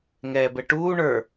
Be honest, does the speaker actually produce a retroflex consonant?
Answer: yes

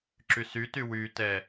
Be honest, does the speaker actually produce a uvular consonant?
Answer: no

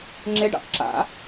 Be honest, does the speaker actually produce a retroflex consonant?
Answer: yes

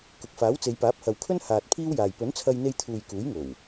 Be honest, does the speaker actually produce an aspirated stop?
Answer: yes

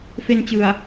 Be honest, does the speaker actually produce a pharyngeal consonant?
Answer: no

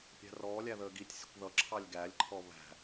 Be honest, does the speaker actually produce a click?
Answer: yes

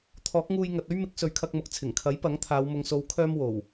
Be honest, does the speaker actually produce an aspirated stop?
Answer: yes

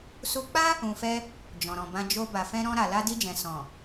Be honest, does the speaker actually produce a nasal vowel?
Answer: yes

